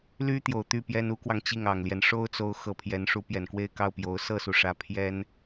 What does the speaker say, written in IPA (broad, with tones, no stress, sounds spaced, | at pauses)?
l y˥ t̪ j o˨˩ ʊ̯ t̪ y˥˩ p j ɛ˥ n u˧˥ k w ɑ˧ ŋ t͡ɕ i˥˩ ŋ ɑ˨˩ ŋ l j ɛ˦ n ʂ o˥ ʊ̯ t͡s o˧˥ ʊ̯ x ɤ˧˥ pʰ j ɛ˧˥ n ʂ u˧˥ p j ɛ˨˩ n k w e˥˧ ɪ̯ k ɑ˥˩ ʊ̯ p j o˧˥ ʊ̯ s ɤ˥˩ s u˩ ʂ ä˧˥ pʰ j ɛ˥ n